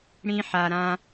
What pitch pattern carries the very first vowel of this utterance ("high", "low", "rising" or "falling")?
high